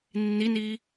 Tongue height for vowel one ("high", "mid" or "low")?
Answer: high